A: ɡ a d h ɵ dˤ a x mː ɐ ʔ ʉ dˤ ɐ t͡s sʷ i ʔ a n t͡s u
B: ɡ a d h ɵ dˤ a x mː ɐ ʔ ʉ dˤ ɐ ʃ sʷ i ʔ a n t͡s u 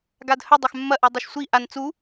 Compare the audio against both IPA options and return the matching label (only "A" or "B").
B